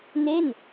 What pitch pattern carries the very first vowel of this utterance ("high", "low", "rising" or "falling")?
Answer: falling